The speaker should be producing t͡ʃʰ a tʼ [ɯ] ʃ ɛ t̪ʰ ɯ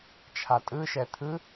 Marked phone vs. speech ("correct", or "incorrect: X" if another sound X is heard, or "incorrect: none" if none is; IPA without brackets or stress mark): correct